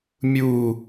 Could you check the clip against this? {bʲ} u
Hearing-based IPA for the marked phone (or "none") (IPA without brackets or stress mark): mʲ